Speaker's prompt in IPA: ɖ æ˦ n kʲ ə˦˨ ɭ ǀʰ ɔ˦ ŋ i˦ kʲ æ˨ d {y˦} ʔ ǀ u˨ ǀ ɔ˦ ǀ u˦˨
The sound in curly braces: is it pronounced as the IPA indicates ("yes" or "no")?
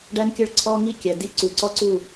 no